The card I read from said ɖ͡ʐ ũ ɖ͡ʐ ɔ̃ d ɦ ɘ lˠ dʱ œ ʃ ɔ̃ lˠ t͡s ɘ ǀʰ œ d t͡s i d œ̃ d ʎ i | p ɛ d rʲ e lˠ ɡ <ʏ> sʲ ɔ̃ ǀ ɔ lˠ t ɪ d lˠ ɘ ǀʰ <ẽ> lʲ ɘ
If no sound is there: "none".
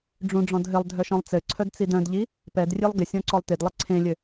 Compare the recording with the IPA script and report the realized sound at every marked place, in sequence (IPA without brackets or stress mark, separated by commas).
ɪ, ẽ